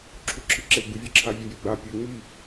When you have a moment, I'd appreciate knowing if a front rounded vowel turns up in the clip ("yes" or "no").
no